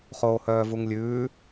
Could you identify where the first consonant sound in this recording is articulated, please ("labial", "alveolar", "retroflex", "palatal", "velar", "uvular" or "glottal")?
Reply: uvular